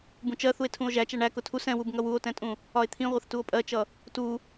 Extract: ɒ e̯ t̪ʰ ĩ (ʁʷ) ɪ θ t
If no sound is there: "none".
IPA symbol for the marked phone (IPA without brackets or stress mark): ʁʷ